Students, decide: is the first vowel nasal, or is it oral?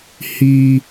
oral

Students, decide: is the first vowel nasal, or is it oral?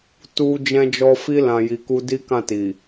oral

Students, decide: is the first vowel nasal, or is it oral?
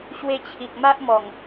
oral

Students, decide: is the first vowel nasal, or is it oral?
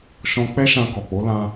nasal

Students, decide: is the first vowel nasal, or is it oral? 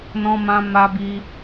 nasal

